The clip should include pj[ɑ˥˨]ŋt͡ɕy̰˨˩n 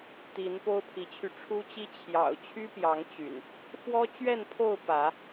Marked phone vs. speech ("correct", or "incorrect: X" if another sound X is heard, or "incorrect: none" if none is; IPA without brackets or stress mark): incorrect: ɑ˨˦